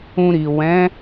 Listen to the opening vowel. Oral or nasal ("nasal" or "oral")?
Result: nasal